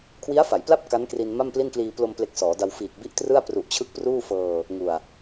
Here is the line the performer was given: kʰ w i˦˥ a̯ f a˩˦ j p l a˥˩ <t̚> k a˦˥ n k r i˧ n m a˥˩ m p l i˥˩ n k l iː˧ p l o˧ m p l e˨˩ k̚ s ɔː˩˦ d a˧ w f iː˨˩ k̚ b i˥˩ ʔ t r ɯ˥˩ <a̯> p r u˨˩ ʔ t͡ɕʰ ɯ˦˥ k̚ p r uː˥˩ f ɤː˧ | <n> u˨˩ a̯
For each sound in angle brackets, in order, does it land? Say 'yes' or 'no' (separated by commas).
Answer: no, yes, no